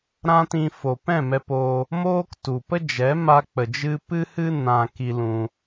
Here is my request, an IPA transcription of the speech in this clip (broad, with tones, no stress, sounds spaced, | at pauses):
ɾ ã˦ t ĩ˧ f o˨ p ɛ̃˦˨ m ɛ˧ p oː˧ | m oː˦ k t u˨ p ə˦ d͡ʒ ɛ˨˦ m a˧ k͡p ə˨ d͡ʒ ɨ˧ p ɨ˦ h ɨ˦ n ã˧ k i˧ l ũ˧